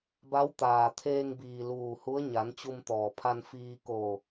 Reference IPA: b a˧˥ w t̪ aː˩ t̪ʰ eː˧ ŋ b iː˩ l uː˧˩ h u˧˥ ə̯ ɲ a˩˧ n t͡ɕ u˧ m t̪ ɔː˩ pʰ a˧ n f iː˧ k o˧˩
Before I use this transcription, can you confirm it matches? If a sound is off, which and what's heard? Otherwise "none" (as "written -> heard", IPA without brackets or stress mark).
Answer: none